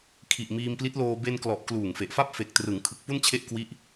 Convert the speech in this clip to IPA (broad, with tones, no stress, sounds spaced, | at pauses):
kʰ i˨˩ ʔ m iː˧ m p l i˦˥ t̚ l oː˧ b e˧ n k l ɔ˨˩ ʔ k l uː˨˩ ŋ f e˨˩ ʔ f a˥˩ p̚ f e˨˩ k̚ t r ɯ˩˦ ŋ kʰ ɯ˨˩ k̚ p u˥˩ n t͡ɕʰ e˥˩ ʔ k w i˦˥ ʔ